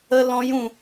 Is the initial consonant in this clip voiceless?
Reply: no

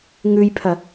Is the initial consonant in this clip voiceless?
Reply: no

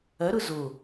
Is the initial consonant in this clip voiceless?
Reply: no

